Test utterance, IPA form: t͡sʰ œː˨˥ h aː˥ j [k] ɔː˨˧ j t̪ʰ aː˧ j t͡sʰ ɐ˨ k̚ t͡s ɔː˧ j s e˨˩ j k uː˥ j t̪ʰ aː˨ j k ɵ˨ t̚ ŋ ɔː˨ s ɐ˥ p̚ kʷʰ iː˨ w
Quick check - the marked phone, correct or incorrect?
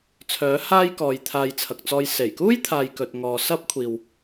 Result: correct